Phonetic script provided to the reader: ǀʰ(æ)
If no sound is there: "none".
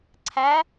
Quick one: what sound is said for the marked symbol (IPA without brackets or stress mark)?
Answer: æ